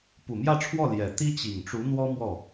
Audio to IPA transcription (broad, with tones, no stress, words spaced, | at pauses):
pu˨˩mjä˥˧ʈ͡ʂʰwɔ˥˩ ljɛ˨˩ t̪i˥t͡ɕi˨˩ŋʈ͡ʂu˧˥n̪wɔ˥ mwɔ˥˩